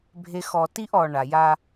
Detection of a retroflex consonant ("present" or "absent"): present